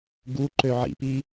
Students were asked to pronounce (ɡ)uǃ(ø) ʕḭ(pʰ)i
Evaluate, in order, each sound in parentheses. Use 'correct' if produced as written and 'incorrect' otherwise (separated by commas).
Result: correct, correct, incorrect